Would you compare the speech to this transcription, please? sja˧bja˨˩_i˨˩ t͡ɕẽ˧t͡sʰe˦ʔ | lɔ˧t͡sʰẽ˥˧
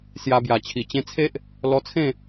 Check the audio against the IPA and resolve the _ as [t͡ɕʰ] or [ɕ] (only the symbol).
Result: t͡ɕʰ